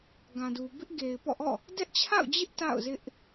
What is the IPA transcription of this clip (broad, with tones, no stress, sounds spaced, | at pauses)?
ɡ ã˨ d u˨ b ɪ˦ ʔ ɡ e˨ ɪ̯ p ɔ̰˦˨ ʔ ɔ̰˦˨ | d ɛ˦ ʔ t͡ɕʰ a̰˦˨ ʊ̯ d͡ʑ ɪ˦ ʔ t a̰˦˨ ʊ̯ z ɪ˦ ʔ